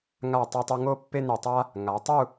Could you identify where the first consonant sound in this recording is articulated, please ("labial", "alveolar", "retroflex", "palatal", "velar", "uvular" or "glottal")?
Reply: velar